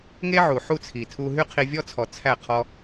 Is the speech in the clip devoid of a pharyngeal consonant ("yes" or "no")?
no